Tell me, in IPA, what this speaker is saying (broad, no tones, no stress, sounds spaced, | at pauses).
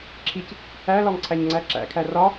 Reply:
ǁʰ i c | æ l ɒ ŋ ǀʰ æ ɲ ŋ͡ǀ æ ǁ æ̰ kʰ æ r ɒ